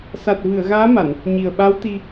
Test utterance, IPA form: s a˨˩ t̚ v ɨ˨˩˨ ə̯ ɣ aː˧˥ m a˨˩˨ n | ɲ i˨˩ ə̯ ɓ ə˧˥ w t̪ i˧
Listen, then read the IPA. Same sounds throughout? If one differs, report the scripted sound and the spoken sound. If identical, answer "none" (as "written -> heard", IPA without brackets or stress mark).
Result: ə˧˥ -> a˧˥